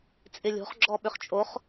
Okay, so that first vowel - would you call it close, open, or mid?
close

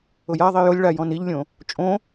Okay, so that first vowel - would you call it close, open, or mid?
close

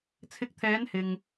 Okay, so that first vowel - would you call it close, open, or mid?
close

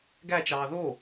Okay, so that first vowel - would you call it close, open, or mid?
open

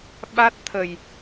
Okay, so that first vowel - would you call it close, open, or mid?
open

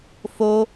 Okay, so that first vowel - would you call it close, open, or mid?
mid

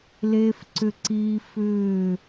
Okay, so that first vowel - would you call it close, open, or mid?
mid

